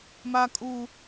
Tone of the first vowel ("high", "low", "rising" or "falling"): high